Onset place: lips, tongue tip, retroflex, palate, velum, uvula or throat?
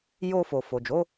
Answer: palate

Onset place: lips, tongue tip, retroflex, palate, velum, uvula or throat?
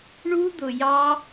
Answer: retroflex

